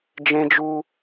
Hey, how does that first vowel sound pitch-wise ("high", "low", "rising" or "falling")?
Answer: high